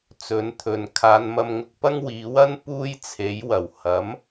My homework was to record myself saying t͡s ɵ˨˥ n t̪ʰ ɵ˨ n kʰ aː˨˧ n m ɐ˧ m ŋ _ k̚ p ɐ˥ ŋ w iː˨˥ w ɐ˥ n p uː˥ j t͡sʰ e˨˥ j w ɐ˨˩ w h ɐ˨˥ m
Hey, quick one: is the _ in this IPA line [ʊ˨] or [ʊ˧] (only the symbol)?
ʊ˧